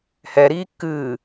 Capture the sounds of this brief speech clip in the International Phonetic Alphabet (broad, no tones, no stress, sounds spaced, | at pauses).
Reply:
h ɛ ɾ iː kː ɨː